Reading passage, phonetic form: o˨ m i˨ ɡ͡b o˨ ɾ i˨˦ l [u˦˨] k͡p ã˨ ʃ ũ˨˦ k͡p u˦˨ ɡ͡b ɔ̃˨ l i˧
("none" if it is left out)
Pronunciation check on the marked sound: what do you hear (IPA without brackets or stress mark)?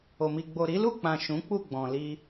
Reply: u˦˨